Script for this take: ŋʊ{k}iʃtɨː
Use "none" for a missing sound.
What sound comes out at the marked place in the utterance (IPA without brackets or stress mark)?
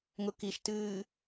k